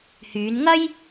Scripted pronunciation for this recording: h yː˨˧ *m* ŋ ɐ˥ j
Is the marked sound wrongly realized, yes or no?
yes